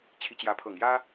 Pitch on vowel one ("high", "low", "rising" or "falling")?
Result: rising